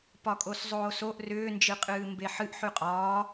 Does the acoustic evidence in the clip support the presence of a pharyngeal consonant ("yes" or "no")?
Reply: yes